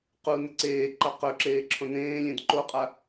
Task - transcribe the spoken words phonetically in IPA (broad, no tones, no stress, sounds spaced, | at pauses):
q u n ɪ ǀ eː ǃ a q ɵ ǁ eː ǁʰ õ n ẽː lʲ ẽ d ǃ o qʼ a